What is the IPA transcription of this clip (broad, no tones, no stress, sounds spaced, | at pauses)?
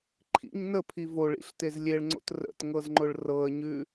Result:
ǃʰ ḭ ɲ n ə pʰ i v o ɭ ḭ ɬ t e z lʲ e ɭ ŋ͡ǀ o̰ t r ə̰ t ŋ ɤ z ŋ͡ǃ ʊ ɭ r ɤ ə̯ ɲ ʉ